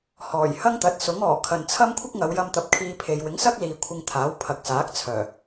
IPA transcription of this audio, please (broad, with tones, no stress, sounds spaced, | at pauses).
h ɔː˨˩ j h ɐ˥ ŋ t̪ ɐ˨˥ t̚ s ʊ˨˥ ŋ ɔː˨˩ kʰ ɐ˨ n t͡sʰ ɐ˥ m kʷʰ ɪ˥ k̚ ŋ ɐ˨˧ w j ɐ˧ m t̪ ɐ˨˥ p̚ kʰ iː˧ pʰ e˨ j w ɪ˨˥ ŋ s ɐ˥ k̚ l iː˨ kʷʰ ɪ˧ ŋ t̪ʰ aː˨˥ w pʰ ɐ˨ k̚ s aː˨˥ k̚ t͡sʰ œː˨˩